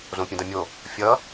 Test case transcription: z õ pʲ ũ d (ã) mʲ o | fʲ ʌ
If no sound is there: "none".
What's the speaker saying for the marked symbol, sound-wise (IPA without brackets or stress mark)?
ã